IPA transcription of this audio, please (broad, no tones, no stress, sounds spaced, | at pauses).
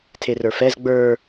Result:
tʰ e r ə˞ f ɛ z ɡ͡b ə˞